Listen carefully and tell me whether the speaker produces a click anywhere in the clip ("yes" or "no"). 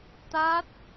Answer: no